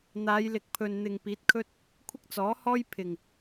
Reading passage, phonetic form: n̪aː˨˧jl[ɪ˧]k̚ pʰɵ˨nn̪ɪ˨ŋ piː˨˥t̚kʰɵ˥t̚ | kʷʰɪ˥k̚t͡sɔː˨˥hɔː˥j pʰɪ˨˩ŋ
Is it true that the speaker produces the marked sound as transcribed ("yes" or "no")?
no